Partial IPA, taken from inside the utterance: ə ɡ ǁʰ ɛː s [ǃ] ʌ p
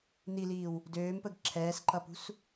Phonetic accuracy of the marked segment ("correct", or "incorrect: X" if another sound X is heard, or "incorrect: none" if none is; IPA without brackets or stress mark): correct